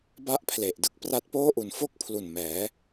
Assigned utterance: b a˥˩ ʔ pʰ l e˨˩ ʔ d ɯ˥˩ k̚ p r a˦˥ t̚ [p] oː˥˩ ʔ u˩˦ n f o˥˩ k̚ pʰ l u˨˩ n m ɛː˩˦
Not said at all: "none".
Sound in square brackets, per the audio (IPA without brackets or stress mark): p